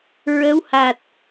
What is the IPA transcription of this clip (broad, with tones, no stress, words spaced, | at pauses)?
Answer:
ɹə˧˥wha˨˩t̚